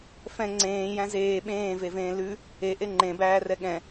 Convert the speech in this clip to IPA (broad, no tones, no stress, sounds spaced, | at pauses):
f ɛ̃ ŋ͡ǀ ẽː j æ̃ z eː ɓ ẽː v e v ẽː l ʉ | e ʔ e ŋ͡ǃ ẽ b æː r ɛ ɠ ɛ̃